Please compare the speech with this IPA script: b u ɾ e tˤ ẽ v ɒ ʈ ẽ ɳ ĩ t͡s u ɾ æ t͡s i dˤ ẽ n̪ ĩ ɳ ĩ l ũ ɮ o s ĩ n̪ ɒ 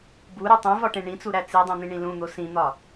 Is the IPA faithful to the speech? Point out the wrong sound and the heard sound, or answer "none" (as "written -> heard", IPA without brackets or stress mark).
ɮ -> n̪